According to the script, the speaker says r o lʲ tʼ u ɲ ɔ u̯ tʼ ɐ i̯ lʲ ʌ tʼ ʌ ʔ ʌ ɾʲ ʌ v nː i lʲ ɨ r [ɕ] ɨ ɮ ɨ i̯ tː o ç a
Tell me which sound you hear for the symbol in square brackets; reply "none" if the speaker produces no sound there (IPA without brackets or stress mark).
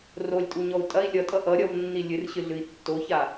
ɕ